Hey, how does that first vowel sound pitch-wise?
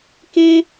high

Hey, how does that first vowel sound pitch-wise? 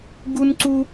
high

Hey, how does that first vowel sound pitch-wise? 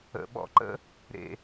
low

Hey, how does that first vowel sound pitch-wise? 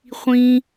high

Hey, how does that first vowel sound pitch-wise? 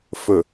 low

